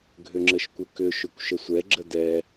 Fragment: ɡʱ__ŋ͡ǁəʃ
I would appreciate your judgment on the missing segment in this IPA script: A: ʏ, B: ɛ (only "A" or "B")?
A